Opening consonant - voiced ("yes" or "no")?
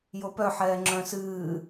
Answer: yes